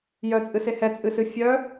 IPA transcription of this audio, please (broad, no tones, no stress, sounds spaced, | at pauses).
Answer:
j œ t͡sʼ ɨ s e h ɛ t͡sʼ ɨ s ɨ fʲ œ